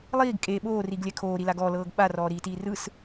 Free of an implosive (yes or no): no